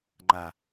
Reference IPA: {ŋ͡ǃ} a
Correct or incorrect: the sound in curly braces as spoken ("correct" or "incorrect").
correct